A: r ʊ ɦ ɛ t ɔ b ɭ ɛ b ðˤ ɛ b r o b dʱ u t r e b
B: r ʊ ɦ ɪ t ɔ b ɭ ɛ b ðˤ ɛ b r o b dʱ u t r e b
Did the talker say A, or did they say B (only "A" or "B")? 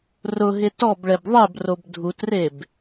B